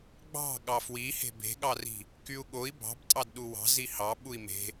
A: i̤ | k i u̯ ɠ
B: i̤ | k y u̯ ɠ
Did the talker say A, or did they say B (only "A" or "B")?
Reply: B